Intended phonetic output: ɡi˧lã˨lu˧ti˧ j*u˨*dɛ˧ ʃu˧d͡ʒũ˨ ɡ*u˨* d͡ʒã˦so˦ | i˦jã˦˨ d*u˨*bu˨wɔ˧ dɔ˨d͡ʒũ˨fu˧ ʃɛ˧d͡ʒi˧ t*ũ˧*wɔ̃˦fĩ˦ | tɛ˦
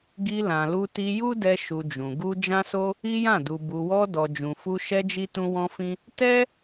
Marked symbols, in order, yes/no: no, no, yes, no

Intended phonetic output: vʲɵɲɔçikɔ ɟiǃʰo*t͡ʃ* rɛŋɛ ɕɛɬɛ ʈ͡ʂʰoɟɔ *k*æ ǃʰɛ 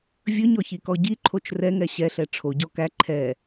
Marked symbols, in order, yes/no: yes, yes

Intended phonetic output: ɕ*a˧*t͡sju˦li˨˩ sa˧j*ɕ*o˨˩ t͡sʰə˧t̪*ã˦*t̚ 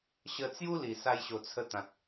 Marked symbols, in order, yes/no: no, yes, no

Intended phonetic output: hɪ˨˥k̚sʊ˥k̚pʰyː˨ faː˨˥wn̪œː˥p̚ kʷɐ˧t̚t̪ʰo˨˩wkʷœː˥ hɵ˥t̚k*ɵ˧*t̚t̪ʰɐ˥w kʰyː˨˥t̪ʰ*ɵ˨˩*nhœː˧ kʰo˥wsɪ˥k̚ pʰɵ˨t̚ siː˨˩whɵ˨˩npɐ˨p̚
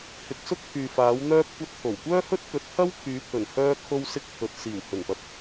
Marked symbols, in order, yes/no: no, yes

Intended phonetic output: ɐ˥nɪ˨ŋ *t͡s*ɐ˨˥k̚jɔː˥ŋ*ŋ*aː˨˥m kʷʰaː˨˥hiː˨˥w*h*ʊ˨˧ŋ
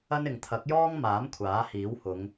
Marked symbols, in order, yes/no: no, no, yes

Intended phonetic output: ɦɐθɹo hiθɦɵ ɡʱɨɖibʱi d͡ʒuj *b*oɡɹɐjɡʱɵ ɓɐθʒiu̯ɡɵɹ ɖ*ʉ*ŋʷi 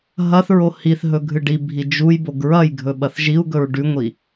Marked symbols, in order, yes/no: yes, yes

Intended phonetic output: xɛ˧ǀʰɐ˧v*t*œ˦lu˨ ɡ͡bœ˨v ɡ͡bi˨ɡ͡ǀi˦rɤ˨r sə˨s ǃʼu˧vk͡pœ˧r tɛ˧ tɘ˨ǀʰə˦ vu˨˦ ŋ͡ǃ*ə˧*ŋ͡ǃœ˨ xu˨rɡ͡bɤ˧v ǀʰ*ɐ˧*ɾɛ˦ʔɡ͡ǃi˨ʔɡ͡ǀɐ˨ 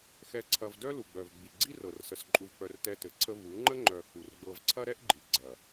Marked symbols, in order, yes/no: no, no, no

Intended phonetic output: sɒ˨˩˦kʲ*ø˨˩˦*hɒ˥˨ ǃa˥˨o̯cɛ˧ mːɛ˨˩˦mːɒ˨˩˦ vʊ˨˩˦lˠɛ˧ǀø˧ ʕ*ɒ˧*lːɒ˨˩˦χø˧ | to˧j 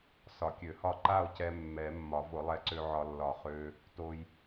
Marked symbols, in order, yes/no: yes, yes

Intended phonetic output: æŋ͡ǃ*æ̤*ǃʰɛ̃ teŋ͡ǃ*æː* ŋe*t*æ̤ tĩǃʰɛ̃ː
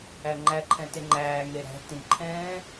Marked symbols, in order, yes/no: no, yes, no

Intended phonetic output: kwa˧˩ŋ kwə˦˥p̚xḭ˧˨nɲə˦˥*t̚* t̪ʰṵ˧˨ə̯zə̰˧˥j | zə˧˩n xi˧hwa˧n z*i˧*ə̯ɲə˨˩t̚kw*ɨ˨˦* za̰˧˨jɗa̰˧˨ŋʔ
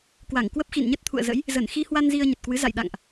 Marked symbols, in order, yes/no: yes, yes, yes

